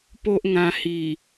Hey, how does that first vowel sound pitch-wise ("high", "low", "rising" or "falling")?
high